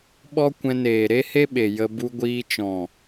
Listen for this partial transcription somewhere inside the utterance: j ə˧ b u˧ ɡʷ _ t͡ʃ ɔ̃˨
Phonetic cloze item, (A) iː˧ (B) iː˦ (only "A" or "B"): A